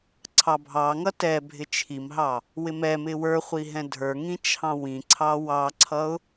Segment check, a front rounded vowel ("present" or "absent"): absent